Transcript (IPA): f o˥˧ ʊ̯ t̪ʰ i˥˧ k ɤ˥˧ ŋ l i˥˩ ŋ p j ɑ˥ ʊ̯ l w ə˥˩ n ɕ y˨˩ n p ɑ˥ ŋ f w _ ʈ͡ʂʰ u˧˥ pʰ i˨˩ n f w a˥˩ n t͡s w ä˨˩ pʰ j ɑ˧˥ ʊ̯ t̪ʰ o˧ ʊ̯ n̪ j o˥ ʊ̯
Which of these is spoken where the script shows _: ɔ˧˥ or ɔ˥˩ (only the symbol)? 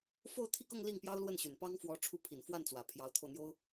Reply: ɔ˧˥